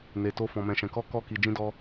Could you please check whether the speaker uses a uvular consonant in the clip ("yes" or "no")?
no